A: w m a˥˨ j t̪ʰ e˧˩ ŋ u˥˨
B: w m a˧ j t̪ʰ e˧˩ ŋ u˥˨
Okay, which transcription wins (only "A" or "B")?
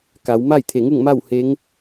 A